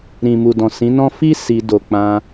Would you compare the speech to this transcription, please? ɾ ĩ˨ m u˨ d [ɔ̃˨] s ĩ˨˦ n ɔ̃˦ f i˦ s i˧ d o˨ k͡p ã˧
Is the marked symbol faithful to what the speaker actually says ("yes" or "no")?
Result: yes